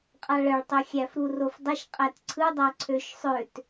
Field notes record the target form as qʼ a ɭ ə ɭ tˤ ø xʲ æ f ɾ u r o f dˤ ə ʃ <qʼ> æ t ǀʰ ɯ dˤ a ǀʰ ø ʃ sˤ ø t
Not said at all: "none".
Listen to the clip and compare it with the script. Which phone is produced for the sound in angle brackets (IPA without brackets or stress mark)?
qʼ